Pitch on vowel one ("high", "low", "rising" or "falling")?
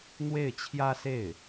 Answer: falling